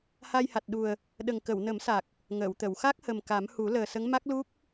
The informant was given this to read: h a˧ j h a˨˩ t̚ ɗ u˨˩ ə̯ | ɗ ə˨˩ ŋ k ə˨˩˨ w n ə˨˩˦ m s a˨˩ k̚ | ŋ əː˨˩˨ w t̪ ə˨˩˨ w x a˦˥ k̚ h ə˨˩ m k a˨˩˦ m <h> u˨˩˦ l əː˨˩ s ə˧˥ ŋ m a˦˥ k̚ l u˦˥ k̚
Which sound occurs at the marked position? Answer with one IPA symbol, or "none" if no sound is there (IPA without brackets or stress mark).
h